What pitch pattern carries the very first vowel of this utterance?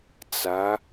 rising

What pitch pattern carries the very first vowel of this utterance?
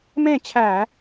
falling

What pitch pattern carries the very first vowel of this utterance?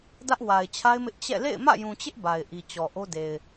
high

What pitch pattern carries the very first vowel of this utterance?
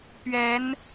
rising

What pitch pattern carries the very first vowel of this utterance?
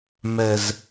low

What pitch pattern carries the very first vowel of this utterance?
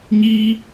high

